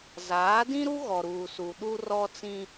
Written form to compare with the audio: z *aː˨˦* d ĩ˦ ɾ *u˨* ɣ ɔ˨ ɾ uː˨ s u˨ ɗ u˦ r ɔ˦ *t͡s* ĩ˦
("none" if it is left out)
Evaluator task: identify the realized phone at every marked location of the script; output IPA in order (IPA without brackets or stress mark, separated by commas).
aː˨˦, u˦, t͡s